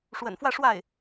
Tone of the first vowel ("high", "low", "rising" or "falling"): low